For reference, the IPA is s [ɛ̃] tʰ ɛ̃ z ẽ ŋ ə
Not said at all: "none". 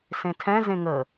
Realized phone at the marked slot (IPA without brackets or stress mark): ẽ